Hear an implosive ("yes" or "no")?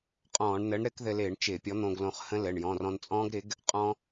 no